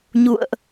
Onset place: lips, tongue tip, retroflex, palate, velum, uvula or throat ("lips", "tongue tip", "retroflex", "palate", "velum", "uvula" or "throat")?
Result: palate